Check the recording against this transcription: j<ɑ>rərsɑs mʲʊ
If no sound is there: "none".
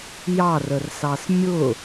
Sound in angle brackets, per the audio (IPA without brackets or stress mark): ɑ